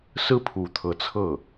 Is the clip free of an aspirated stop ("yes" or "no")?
no